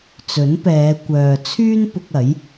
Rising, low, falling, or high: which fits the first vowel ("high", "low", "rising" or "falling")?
rising